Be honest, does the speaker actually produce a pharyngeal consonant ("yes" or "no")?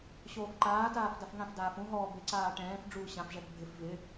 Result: no